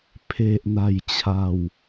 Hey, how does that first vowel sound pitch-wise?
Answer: low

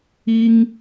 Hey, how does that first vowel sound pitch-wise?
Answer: high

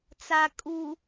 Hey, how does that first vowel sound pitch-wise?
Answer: low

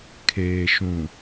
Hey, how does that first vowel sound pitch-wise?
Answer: low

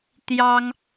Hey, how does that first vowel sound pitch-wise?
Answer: high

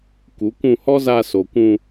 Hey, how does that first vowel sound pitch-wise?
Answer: rising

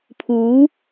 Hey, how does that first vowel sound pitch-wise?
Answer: rising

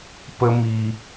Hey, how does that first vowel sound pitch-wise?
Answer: high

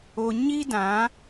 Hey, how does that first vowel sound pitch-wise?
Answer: low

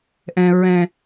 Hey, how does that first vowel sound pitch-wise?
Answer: low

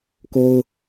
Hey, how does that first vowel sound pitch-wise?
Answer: high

